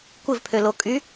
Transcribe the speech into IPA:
kʷɪvpʰølo kʼy

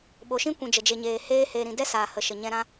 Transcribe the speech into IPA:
ɓo˨ʃĩ˦kʷũ˨ d͡ʒə˨d͡ʒe˨ɲeː˨ heː˦ heː˨ɾĩ˨dɛ˦ saː˨hə˨ ʃə˨ɲɛ̃˧ɾã˦

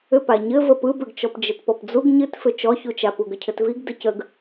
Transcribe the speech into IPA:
ʏpa ɲɘ vəpɯbʏɡt͡ʃɔp d͡ʒɘtpɔpd͡zuɡ ɲɨtfʏ t͡ʃɔçut͡ʃapu ɡəcʰɘtviɡ dəcəɡ

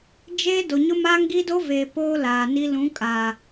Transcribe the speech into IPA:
d͡ʒeː˦ do˨ɲʊ˦maː˦ŋ ɡi˦do˦veː˨ poː˦laː˨ni˦ lũ˨˦kʼa˨

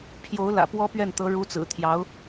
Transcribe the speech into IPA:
pʰjo˧˥ʊ̯ lä̰˨˩ pwɔ˥ pɥɛ˥˩nt̪ɤ˧˥ ɻu˧˥t͡sɹ̩˨˩t̪ʰjɑ˧˥ʊ̯

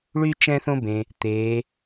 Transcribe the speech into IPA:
ɭy˥ t͡ʃɛ̃˥θõ˥bẽ˩ | t̪e˩˧

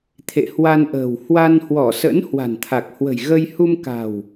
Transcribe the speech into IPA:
t̪ʰḛ˧˨hwa˧nʔə̤ː˨˩w hwa˧nhwɔ˧˩sə̰˧˥n hwa̤˨˩nt̪ʰa˨˩k̚hwə̤˨˩j ɣə˧j hu˧mka̤˨˩w

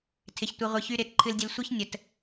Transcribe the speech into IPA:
tʰɪ˨çtʷɨ˨ ʁʷɨ˨çy˧ ɾɪ˨˦tǃʰɨ˧ldʲə˧l sʷɨ˦çnʲə˨t

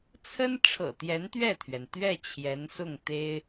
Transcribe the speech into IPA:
t͡sʰə˥n ʈ͡ʂʰɤ̰˨˩t̪jɛ˧˥nt̪ɥɛ˥˩t̪ʰɥɛ˩n t̪ɥɛ˥˩ t͡ɕʰjɛ˧˥nsʊ˥˩ŋ t̪e˥ɪ̯

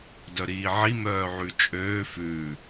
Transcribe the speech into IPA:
dœɾiːʕi mœːʕʉt͡ʃʼøː fʉ

